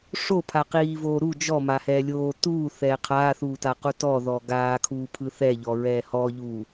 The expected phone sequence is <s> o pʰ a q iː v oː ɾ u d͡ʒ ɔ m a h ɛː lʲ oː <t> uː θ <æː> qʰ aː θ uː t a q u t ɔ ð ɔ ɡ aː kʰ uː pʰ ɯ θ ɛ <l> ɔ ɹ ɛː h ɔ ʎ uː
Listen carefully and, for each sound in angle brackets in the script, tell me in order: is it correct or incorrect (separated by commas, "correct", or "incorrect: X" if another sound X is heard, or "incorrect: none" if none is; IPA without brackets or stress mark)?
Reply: incorrect: ʂ, correct, incorrect: ɛː, incorrect: ʎ